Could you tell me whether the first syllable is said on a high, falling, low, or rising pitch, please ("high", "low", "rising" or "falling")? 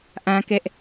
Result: high